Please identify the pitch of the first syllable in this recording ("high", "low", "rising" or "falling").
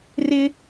high